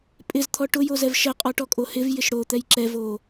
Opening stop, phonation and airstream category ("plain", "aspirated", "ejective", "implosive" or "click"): ejective